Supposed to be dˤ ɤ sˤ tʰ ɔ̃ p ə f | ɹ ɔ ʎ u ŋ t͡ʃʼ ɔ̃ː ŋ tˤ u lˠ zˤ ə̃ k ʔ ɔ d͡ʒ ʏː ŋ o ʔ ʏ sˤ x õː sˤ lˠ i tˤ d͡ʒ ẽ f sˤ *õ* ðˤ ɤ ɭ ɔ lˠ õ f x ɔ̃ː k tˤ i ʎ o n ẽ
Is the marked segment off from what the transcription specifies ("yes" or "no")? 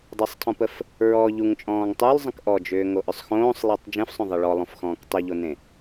no